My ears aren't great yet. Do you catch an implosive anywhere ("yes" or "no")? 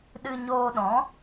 yes